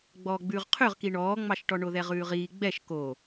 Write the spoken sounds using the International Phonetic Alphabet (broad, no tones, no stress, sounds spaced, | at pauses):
ɡ͡b ɔː ɡ͡b ʉː ʁ qʰ ø ʁ k i ɳ ɔː ŋ͡m ɑ ʃ ʈ ɔ ɳ o ð ɛ ʁ ʉː ʁ iː ɡ͡b ɛ ʃ k o